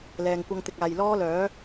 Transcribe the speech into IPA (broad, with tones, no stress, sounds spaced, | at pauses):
l ɛː˨ ŋ kʷ ɐ˧ ŋ t̪ ɪ˨ k̚ aː˨ j l ɔː˥ l œː˨˥